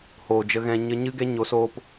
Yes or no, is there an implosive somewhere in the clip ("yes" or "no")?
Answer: no